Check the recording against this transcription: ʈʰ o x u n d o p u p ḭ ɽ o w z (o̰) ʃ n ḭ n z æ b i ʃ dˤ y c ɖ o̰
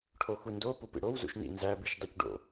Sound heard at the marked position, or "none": ṵ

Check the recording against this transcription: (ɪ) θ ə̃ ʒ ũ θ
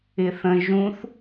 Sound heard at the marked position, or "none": ɪ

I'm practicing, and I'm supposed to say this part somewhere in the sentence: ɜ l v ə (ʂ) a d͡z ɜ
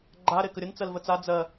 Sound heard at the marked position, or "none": t͡s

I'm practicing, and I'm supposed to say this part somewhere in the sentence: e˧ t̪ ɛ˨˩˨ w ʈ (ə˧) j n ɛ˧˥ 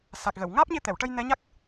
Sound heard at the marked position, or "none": ə˧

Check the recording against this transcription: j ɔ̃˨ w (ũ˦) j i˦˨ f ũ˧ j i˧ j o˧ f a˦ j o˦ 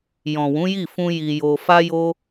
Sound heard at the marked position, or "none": ũ˨˦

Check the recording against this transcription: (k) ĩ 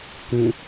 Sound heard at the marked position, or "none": k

